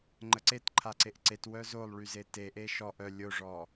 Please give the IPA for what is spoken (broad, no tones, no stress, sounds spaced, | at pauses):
ŋ͡ǃ ə ǀ e t ǃʰ a ǀ e ʔ ǀ e t w œ z o lˠ ɭ y z e t e ʔ e ʃ ɔ ʔ œ lʲ o ʐ ɔ